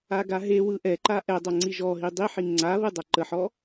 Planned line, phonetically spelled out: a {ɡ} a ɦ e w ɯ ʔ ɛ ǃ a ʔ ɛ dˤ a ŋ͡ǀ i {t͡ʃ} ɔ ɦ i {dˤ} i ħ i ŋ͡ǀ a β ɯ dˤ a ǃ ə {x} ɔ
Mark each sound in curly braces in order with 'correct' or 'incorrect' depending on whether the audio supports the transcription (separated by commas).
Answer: correct, incorrect, correct, incorrect